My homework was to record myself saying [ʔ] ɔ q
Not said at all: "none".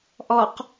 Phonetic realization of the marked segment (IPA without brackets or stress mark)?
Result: ʔ